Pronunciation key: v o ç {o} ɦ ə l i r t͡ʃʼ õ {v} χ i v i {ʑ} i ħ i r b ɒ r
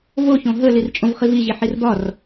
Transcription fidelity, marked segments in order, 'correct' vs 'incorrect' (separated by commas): incorrect, correct, correct